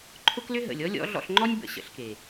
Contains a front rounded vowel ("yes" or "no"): yes